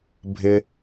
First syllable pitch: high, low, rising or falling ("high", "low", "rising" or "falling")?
high